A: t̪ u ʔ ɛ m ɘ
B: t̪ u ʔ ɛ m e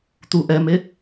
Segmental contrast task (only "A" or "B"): B